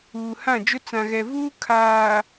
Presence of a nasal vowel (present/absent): present